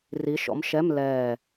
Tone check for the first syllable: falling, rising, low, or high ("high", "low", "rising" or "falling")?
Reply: rising